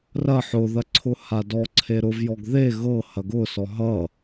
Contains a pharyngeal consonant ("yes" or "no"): yes